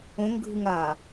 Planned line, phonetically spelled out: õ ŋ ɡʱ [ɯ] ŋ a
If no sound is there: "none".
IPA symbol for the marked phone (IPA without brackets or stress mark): ɯ